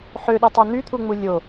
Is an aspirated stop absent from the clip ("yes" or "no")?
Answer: no